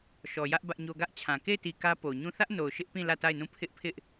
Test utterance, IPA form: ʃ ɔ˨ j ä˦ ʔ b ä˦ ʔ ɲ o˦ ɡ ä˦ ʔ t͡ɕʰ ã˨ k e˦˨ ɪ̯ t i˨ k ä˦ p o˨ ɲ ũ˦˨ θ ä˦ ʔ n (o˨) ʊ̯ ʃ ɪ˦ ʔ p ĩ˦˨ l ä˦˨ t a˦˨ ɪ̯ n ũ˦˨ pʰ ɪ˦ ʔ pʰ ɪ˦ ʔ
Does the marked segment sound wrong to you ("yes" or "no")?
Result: no